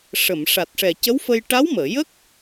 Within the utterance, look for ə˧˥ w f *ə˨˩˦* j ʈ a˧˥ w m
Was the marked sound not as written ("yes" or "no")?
yes